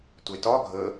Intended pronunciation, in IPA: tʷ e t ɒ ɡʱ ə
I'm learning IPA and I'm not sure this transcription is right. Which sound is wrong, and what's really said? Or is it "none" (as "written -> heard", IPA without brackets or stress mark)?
none